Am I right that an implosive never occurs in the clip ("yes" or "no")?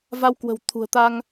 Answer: yes